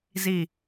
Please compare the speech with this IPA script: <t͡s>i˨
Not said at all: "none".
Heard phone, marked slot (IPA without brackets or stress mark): z